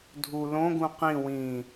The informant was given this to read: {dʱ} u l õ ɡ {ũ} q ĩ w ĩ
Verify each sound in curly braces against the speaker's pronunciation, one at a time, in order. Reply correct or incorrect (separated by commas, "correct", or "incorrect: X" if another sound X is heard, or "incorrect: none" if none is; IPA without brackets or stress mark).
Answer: correct, correct